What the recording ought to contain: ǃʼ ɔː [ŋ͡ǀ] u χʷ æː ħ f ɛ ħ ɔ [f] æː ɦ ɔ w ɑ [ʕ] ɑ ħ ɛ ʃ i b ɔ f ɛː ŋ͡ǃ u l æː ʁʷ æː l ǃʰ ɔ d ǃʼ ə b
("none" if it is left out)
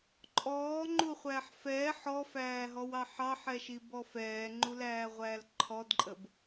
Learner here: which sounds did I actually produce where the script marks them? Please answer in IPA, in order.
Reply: ŋ͡ǃ, f, ħ

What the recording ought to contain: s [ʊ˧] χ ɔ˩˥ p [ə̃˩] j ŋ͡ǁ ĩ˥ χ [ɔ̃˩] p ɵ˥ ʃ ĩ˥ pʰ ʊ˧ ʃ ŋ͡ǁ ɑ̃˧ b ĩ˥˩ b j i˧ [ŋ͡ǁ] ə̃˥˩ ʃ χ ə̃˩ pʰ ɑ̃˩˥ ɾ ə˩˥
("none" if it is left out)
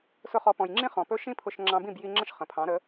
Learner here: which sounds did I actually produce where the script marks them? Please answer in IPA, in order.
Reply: ʊ˧, ɔ̃˩, ɔ̃˩, ŋ͡ǁ

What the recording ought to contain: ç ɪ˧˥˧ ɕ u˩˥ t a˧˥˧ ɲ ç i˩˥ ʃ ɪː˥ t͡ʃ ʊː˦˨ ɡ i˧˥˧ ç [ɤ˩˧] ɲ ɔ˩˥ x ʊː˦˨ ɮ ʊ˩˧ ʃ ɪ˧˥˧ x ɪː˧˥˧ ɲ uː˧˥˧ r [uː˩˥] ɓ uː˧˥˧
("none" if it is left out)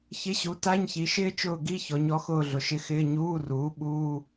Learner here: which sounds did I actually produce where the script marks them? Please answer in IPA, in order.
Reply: ɔ˩˧, uː˩˥

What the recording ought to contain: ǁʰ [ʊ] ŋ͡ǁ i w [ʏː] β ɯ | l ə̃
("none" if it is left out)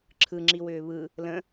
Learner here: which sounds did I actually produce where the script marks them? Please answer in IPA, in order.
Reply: ɯ, ʏː

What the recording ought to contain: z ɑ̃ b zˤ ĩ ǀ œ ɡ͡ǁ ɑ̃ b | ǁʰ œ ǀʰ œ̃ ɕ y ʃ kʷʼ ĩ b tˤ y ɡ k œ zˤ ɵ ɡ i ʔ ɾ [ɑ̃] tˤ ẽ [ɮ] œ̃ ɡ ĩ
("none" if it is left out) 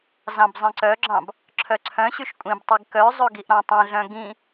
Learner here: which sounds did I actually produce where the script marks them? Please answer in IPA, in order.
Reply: ɑ̃, ɮ

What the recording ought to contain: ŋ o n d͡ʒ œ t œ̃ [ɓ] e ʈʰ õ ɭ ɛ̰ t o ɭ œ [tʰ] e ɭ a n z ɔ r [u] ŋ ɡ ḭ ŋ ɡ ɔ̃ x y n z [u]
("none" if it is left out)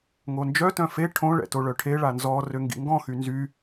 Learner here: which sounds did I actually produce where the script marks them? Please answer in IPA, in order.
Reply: f, ʈʰ, ø, y

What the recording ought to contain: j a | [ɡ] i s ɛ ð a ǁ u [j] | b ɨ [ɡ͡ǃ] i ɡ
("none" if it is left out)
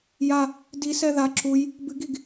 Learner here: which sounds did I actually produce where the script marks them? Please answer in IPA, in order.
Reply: d, j, ɡ

